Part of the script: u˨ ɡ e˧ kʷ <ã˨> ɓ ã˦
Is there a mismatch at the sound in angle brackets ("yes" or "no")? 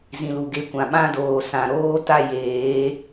no